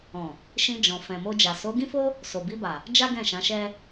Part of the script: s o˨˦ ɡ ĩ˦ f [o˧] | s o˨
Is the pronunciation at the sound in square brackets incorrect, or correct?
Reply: incorrect